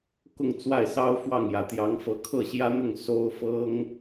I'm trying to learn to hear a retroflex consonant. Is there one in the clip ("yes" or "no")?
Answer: no